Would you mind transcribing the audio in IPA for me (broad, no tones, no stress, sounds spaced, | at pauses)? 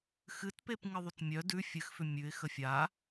x ɨ t p e p ŋ ɨ ðˤ ʉ t mʲ œ d ʉ fʲ ɨ x f ʏ mʲ ʉ ɪ̯ x ə fʲ a